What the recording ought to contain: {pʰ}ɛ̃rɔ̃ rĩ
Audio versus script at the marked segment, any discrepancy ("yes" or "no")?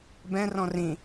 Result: yes